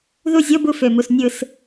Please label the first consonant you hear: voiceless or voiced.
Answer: voiced